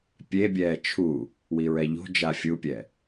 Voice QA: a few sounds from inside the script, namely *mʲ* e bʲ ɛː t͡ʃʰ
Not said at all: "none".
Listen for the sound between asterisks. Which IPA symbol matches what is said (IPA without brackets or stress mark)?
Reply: pʲ